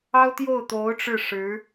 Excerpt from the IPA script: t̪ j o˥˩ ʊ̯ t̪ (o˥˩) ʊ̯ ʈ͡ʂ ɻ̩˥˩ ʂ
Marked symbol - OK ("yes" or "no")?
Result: no